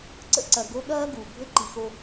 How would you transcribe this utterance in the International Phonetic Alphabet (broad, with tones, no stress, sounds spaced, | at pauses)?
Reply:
ǀ ə̰˦ ǀ ɐ˨ ɡ o˦ ɠ ɐː˥ ɡ u˩ bʱ ɘ˦ ǃ i˨ x o˦